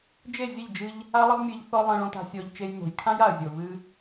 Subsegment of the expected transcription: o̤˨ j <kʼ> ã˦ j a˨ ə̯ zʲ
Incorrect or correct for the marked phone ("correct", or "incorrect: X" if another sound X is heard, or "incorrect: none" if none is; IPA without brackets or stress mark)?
incorrect: kʰ